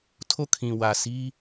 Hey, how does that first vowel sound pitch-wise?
falling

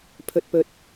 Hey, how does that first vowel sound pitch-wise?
low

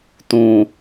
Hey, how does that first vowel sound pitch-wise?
low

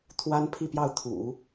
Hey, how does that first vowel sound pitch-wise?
high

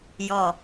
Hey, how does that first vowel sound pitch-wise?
low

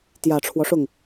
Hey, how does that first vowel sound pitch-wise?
low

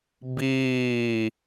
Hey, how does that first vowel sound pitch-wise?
falling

